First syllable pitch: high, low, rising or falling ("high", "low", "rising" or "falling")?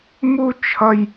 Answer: high